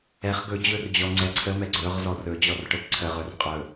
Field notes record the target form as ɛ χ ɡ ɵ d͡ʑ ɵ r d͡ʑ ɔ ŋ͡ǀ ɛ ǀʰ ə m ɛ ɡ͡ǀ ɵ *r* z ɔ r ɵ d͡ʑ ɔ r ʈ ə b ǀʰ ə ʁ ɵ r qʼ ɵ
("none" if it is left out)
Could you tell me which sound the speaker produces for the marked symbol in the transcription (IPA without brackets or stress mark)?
ʁ